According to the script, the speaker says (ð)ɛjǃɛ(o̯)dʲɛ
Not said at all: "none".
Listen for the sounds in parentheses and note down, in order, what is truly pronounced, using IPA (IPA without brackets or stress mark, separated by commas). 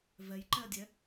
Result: v, ɐ̯